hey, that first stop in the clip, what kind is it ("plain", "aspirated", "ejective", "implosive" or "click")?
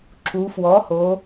click